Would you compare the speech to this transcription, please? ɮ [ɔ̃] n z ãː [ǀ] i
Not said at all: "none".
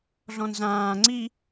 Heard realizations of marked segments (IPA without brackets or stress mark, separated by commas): ɔ̃, ŋ͡ǀ